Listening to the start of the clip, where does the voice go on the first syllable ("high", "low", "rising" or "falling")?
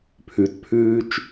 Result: low